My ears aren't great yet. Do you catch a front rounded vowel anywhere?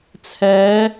no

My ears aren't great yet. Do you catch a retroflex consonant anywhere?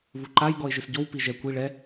yes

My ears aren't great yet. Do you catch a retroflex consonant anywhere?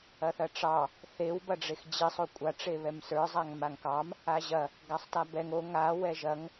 yes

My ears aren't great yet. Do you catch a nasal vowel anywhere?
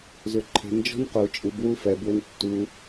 no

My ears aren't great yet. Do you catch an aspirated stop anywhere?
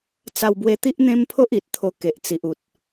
yes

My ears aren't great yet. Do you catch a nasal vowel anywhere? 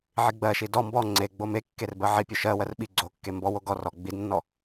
no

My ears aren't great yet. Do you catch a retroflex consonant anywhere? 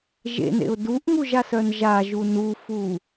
no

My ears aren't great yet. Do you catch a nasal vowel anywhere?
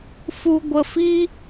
no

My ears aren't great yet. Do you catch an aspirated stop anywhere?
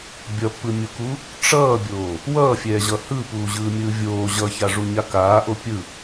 no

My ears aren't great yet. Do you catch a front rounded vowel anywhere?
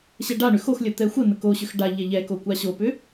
yes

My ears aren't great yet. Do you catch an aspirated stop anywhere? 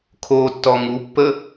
yes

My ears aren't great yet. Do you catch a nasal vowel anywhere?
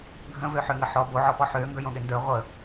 yes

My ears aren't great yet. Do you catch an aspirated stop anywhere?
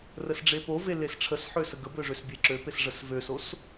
yes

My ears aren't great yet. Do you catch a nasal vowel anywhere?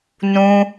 yes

